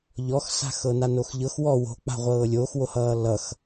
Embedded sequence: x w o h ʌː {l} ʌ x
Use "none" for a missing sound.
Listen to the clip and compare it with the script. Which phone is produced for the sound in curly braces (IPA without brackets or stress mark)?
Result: l